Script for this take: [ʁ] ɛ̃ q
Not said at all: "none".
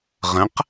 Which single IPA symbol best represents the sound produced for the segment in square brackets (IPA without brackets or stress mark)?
ʁ